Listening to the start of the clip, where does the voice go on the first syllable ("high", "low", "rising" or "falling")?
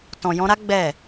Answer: low